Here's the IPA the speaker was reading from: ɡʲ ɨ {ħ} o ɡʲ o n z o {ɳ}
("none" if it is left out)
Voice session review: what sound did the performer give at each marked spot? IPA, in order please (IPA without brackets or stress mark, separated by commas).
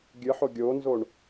ħ, ɳ